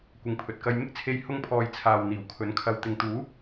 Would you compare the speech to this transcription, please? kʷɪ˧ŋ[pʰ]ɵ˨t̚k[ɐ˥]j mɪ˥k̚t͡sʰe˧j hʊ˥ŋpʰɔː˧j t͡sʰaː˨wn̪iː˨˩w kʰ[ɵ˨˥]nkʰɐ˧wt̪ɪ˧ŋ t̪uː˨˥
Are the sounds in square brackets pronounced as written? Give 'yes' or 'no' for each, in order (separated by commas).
yes, yes, yes